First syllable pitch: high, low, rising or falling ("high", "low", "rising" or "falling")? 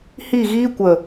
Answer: falling